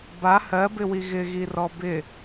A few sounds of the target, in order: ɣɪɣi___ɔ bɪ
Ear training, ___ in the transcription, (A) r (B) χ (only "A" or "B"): A